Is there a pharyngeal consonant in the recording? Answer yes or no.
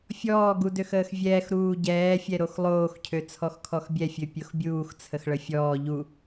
no